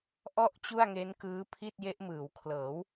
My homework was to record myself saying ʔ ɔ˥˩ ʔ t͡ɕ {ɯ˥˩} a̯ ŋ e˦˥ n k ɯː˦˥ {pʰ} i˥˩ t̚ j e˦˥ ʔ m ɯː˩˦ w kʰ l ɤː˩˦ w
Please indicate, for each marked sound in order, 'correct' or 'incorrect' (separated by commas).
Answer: incorrect, correct